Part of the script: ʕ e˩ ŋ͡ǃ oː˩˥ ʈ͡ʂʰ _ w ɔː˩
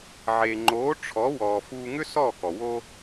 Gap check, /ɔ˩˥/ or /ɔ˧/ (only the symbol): ɔ˩˥